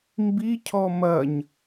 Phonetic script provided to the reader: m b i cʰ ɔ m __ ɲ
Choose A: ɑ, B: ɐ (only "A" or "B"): B